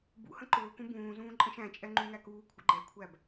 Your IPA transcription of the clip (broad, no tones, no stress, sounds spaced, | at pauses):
b ṵ h ə̃ ǃ ʊː k ũ b ũː z ũː ǃʼ ə̃ ʃ æ̃ t͡ʃʼ ɛ ŋ͡ǃ ũ ŋ æ k uː kʷʰ ə̰ ɡ͡ǃ ɛ kʷʰ æ b